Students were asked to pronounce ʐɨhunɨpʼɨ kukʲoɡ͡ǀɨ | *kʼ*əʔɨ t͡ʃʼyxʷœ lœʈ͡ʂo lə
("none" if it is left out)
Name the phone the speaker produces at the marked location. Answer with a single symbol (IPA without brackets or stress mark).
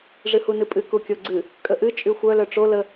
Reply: kʼ